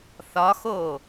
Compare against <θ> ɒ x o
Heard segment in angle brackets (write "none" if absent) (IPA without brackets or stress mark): θ